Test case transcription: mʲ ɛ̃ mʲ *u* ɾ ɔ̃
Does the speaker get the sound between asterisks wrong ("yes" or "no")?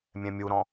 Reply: no